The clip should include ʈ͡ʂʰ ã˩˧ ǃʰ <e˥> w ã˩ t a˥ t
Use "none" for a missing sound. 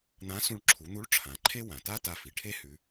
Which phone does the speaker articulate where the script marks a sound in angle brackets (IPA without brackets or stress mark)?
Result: e˥